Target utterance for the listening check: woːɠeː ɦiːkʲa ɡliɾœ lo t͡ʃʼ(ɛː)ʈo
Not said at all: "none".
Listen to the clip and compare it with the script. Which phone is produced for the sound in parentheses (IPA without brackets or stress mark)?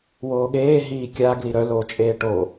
eː